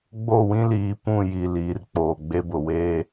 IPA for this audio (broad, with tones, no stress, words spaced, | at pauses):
ɡ͡bo˦˨wĩ˦liː˨ pũ˦˨ji˨ liː˨rk͡poː˨ɡ͡be˦bʊ˨ weː˦